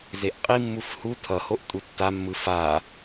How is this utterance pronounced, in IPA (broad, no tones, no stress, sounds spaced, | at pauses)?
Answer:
z e ʔ qʼ i mː u f h u tʰ ʌ h o ʔ tʼ u tː a mː ɯ f a